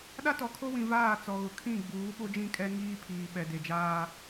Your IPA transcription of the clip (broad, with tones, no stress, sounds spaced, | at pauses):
ɗ a˦ t ɔ˨ kʰ o˦ w ĩ˨ v aː˦˨ t͡s ɔ˨ ɣ ʊ˨ kʰ ĩ˦˨ ɡ͡b uː˨˦ ɓ o˦ d͡ʒ ĩ˦˨ kʼ ɛ˦ ŋ iː˦ pʰ iː˨ ɓ ɛ˨ d e˨ d͡ʒ aː˦